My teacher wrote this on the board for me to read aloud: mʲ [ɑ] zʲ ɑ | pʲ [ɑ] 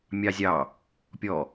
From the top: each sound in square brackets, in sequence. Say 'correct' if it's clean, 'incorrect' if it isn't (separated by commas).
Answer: correct, incorrect